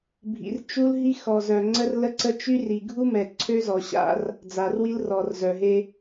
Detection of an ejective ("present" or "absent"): absent